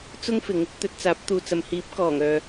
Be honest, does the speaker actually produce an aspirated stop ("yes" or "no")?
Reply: no